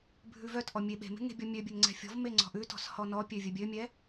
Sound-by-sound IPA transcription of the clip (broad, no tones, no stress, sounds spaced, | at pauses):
bʱ ʉ v œ t ʔ ɔ mʲ e ɓ e̤ m e̤ ŋ e̤ bʲ ɔ mʲ ø bʲ ø ŋ ŋ͡ǀ ɛ̤ fʲ ɔ̤ v m e ŋ͡ǀ ɔ̤ ʔ ʉ t ɔ̤ s h ɔ n ɔ pʲ ø vʲ œ bʲ ø mʲ ɛ